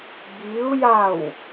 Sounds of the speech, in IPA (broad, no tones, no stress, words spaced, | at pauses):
biu̯jaw